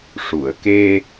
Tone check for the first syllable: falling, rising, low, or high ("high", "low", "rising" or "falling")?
low